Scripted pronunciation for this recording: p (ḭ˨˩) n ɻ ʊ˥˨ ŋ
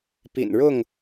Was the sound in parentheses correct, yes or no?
yes